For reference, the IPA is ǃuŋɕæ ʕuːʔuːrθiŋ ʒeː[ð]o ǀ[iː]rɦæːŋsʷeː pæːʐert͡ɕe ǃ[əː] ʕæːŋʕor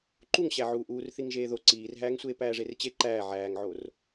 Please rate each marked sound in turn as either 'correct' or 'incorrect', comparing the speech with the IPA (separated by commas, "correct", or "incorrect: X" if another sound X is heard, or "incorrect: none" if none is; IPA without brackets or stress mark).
correct, correct, incorrect: æː